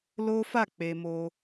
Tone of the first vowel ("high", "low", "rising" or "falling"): high